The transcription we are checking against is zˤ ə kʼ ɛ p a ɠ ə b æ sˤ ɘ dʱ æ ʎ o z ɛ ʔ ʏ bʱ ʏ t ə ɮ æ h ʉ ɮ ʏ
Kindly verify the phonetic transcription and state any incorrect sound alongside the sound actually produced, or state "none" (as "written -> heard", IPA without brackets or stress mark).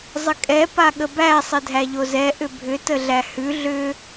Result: none